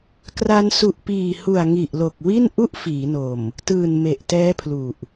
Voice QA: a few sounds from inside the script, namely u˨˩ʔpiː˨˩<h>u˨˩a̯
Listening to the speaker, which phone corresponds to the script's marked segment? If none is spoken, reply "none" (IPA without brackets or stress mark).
h